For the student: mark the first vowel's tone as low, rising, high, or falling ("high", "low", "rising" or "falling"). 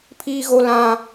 high